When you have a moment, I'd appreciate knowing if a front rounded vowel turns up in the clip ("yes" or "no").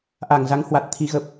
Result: no